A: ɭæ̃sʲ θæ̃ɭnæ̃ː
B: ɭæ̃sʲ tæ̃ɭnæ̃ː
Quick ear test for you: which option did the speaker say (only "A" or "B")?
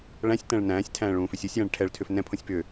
B